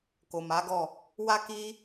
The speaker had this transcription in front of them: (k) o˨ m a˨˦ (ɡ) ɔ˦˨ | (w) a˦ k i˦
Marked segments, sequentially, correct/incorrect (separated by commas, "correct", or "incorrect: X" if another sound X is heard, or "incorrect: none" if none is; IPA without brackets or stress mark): correct, correct, correct